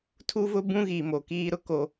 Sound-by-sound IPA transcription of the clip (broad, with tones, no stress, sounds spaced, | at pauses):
tʰ u˦ v ʊ˦ b ũ˦ ɣ i˨ m o˨ k iː˦ ɾ ʊ˦ k o˦